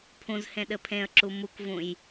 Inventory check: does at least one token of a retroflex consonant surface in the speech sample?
no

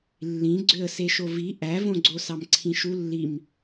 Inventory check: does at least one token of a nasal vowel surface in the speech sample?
yes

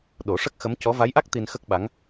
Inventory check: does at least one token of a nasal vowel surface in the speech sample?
no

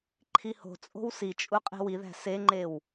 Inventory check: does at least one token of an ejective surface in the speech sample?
yes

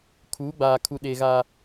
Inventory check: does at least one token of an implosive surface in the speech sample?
yes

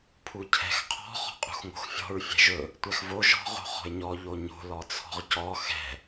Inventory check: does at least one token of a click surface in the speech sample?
no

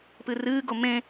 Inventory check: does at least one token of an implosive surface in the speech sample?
no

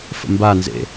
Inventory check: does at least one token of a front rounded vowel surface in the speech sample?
no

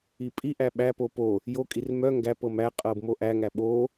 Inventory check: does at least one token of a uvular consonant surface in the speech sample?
yes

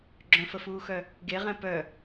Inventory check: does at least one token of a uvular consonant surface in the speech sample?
yes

